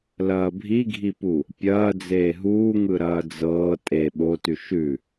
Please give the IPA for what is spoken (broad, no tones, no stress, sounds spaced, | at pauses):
l ɐː bʱ i ɡʱ i p u | pʲ ɐː d͡z eː ɦ uː ŋ ɯ ɾ ɐː d͡z ɤː tʼ e ɓ o t ʉ ʃ ʉ